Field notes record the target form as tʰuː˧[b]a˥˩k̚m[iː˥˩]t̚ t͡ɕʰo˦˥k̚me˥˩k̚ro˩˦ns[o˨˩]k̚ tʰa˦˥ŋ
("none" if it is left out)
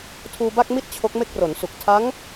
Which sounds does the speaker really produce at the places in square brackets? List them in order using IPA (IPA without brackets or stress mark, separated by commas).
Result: b, i˥˩, u˨˩